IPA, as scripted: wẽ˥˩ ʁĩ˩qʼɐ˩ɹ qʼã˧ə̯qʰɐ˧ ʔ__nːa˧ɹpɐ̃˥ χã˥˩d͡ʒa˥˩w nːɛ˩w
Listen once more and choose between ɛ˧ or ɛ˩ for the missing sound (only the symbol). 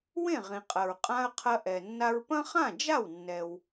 ɛ˩